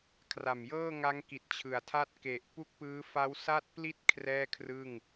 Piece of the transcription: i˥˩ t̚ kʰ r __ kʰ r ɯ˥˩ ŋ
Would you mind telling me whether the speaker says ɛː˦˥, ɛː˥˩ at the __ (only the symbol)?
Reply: ɛː˥˩